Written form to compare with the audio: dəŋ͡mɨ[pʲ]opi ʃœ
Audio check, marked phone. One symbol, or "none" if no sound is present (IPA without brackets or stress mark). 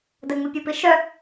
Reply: pʲ